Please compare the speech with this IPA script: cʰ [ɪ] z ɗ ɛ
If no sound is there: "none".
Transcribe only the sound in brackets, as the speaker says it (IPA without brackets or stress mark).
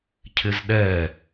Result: ɪ